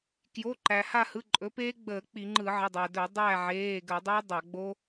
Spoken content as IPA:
k j o˩˧˩ ǃ æ˩ h a˦˨ h ɯ˩˧˩ ǃʼ ɵ˩˥ p eː˦˥ ɡ͡b əː˧˩˧ k͡p i˧˩˧ ŋ͡ǃ ɯ˧˩˧ ʕ ə˩˧˩ dˤ æ˩ d ɵ˧˩˧ dˤ æ˦˨ ʕ eː˩˧˩ ɡ ə˧˩˧ dˤ ɵ˦˥ dˤ a˧˩˧ ɡ͡b o˦˥

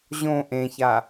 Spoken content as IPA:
ʑ õ ʔ ẽ ç a

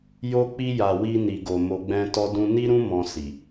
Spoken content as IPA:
j o˧ k͡p i˧ j a˨ w i˧ n i˨ ɡ o˨ m o˨ ɡ͡b ɛ̃˧ t ɔ˧ d ũ˧ n i˦ ɾ ũ˦ m ɔ̃˧ s i˨

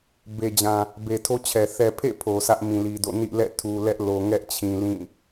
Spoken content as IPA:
b e˨ d͡ʑ ã˨ | b e˨ tʰ o˦ t͡ɕʰ ɛ˨ θ ɛ˨ pʰ ḛ˦˨ pʰ o˨ sʰ ä˦ ʔ m ĩ˨ l i˨ d o̰˦˨ n ḭ˦˨ l ɛ̰˦˨ tʰ u˨ l ɛ˦ ʔ l o˨ ŋ ɛ˦ ʔ t͡ɕʰ ĩ˨ l ĩ˦˨

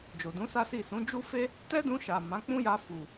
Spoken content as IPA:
d͡ʒ o˨ d ũ˨˦ s a˦ s i˦˨ s ũ˨˦ d͡ʒ u˦ f e˦ | t ɛ˦ d ũ˧ ʃ a˨ m ã˨˦ k͡p ũ˦ j a˧ f u˨

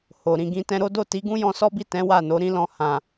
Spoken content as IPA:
h o˨ ɾ ĩ˨ ɡ ĩ˨˦ t ɛ̃˧ ɾ o˦ d o˦˨ t i˨˦ ɡ ũ˦ j ɔ̃˧ s ɔ˦ b i˦˨ t ɛ̃˨˦ w a˦˨ n o˨˦ ɾ ĩ˦ l ɔ̃˧ h ã˨

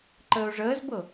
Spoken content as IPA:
ǃ əː ʊ̯ ʐ əː z b ɤ

